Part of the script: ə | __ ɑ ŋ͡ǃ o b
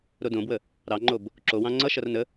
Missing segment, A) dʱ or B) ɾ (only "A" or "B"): B